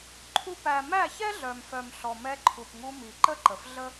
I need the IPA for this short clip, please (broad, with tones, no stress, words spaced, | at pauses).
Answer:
ǃʰu˧pæ˨ mæ˦˨çɛ˦ɮœ˨mfœ˨m ɬɔ˨mɛ˧ǃʰu˨pŋu˧ mi˨ǃə˦ ǃə˨fɮə˦